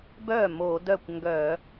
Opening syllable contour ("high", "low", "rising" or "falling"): falling